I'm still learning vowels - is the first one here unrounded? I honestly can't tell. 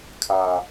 yes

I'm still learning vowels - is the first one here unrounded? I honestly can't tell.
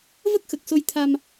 yes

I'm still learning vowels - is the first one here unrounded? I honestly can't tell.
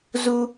no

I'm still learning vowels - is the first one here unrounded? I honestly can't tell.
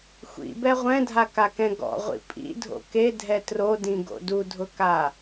yes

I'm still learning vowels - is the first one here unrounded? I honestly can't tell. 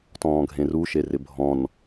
no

